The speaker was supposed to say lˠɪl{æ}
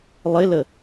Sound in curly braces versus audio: incorrect: ə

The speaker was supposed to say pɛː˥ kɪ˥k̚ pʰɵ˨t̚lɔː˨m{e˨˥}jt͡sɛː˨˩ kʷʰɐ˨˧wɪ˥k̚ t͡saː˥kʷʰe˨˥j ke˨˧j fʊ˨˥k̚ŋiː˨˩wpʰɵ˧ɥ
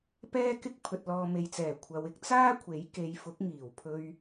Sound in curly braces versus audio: incorrect: e˨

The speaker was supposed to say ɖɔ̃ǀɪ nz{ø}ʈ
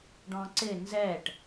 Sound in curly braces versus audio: incorrect: ɛ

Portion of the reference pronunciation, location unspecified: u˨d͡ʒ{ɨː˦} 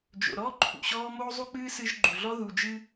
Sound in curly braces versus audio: incorrect: ɨ˦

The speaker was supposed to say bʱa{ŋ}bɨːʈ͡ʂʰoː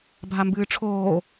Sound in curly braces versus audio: incorrect: m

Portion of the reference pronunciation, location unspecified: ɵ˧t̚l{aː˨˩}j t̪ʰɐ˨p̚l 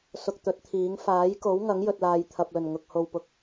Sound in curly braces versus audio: incorrect: aː˧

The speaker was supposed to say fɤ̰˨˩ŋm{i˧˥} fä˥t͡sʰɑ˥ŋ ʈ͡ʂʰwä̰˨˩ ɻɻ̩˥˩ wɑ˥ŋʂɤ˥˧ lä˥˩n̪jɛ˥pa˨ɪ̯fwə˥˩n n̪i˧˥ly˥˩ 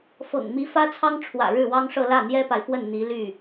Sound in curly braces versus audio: correct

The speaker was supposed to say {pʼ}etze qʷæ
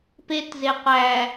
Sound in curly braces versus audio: incorrect: p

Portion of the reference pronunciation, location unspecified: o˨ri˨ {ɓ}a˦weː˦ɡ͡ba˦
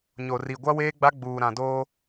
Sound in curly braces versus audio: incorrect: ɡʷ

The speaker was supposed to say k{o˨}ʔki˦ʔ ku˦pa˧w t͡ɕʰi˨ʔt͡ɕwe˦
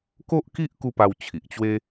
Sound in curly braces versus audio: incorrect: o˦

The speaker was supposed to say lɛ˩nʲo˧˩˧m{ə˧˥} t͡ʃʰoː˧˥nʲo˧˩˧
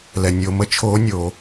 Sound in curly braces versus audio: correct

